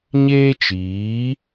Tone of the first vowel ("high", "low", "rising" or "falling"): high